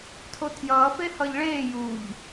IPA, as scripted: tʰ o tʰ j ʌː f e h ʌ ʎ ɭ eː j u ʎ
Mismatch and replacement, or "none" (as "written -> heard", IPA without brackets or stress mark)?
none